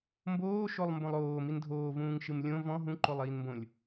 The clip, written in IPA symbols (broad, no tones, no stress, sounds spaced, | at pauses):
m b oː ʃ o lˠ m b õ lˠ oː m i n dʱ oː v ũː ŋ ʃ ɨ m lʲ õ v ɔ̃ ɦ ũ ǃ o lˠ iː n m b õ lʲ